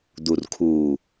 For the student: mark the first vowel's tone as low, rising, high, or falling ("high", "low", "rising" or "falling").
low